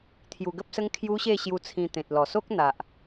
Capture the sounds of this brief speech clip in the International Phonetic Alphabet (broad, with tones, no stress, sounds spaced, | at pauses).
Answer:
t̪ʰ j u˧ ɡ ə˦ p̚ s ə˦ ŋ kʰ j u˦ ɕ e˥˧ ɕ j u˧ t͡sʰ ĩ˧ t̪ ẽ˨ t̚ l ɔ˨˩ s o˦ k̚ n̪ a˨ ʔ